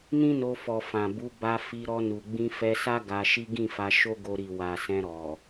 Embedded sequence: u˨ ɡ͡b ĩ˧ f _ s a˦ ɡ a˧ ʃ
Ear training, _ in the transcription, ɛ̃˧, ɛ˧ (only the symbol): ɛ˧